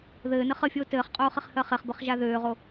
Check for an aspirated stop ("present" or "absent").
absent